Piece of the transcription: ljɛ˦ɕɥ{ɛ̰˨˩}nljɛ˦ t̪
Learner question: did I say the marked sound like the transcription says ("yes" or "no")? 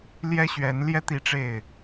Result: no